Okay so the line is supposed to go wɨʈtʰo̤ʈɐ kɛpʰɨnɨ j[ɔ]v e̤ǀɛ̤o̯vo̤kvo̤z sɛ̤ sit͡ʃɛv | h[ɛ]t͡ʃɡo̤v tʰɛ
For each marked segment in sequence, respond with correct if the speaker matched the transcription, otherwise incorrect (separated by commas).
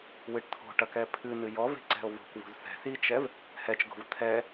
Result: correct, correct